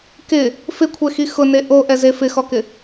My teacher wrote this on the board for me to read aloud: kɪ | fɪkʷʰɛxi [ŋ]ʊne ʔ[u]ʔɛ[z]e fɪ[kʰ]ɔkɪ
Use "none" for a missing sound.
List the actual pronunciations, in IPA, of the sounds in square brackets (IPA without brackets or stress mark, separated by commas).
x, o, z, x